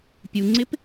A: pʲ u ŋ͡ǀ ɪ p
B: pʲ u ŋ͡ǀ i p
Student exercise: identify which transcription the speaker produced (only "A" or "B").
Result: A